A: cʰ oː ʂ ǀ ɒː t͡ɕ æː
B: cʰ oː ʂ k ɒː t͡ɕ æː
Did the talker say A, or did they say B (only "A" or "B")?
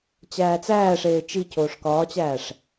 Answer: B